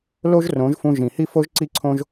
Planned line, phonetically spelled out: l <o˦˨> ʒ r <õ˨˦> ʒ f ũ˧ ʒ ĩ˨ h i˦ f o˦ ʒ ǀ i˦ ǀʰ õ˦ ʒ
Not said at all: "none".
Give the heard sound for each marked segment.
o˦, õ˨˦

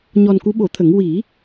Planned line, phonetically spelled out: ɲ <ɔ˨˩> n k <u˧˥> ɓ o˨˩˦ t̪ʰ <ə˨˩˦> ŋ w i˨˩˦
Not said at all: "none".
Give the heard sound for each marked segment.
ɔ˨˩, u˧˥, ə˨˩˦

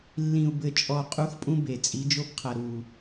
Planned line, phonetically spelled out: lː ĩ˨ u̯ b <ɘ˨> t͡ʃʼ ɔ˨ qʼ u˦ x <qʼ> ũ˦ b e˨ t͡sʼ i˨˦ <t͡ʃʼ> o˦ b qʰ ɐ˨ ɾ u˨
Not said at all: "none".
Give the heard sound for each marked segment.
ɘ˨, pʼ, d͡ʒ

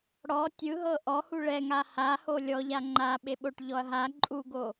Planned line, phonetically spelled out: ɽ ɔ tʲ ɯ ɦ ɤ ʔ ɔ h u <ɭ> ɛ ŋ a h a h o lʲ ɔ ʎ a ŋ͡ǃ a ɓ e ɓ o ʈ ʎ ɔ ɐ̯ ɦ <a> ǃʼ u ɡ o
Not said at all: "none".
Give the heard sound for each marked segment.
ɭ, a

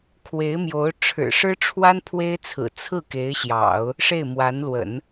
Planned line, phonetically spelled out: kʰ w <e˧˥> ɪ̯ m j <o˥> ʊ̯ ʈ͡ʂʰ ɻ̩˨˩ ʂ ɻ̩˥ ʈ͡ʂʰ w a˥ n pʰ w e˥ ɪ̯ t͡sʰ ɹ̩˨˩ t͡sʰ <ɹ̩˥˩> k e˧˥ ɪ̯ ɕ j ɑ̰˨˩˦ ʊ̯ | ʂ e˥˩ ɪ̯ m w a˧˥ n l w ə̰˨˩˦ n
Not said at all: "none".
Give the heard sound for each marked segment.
e˧˥, o˧˥, ɹ̩˥˩

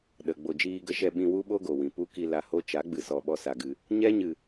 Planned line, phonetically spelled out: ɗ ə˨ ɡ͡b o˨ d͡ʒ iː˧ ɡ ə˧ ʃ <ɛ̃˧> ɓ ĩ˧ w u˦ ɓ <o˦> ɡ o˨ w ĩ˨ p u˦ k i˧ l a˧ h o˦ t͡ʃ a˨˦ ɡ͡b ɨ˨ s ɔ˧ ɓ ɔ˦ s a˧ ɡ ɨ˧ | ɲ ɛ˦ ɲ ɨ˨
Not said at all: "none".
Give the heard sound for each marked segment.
ɛ˧, o˦

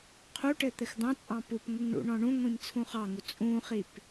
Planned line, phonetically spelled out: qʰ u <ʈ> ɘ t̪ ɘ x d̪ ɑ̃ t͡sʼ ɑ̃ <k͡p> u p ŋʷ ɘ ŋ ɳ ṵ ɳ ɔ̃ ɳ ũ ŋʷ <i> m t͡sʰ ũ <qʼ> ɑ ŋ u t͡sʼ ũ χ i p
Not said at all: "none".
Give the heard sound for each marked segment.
ʈ, p, ĩ, χ

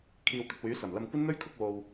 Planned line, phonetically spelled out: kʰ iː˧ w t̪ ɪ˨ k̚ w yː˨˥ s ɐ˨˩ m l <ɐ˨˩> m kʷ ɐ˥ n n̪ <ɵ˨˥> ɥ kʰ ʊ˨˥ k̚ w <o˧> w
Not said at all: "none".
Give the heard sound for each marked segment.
ɐ˧, ɵ˥, o˧

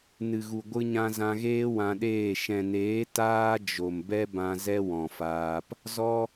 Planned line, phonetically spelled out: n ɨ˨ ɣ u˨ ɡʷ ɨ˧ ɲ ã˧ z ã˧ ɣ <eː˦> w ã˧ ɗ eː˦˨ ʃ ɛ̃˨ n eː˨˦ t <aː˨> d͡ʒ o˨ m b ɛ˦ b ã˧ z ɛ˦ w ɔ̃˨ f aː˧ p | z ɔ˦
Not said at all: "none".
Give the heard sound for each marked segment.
eː˦, aː˦

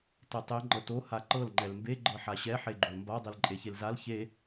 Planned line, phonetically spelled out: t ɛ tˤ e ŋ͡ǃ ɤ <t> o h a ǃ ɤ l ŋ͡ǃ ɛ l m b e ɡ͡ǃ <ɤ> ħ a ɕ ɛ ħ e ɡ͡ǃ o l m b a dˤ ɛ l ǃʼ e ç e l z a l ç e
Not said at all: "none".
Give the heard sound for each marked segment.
t, ɤ

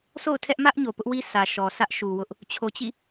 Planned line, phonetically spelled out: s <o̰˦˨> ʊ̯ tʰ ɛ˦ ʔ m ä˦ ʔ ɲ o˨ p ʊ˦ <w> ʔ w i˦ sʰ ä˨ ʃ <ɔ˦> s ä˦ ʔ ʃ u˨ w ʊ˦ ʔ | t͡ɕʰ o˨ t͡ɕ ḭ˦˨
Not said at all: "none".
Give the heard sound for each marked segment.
o̰˦˨, none, ɔ˨

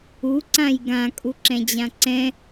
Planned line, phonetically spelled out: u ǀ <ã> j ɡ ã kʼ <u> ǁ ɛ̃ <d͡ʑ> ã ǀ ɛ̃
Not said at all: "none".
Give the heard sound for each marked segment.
ã, u, d͡ʑ

